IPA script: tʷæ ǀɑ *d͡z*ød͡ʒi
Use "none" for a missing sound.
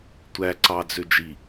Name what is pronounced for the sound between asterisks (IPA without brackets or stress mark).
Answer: d͡z